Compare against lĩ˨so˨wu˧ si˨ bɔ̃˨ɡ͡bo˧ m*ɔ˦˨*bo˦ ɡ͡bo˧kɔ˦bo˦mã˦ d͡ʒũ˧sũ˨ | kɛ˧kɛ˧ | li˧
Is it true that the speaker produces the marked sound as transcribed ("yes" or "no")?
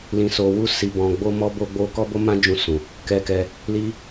no